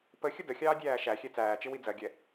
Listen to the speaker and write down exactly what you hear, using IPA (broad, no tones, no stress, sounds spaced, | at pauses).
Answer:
p ə xʲ ə d ə xʲ ɑː dʲ æː ʃ æ xʲ ɛ t͡s æː t͡ʃ ɪ w i d͡z ɜ ɡʲ ɛ